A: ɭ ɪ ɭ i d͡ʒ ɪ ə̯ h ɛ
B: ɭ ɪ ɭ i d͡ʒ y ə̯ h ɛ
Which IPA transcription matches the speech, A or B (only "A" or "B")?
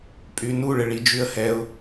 B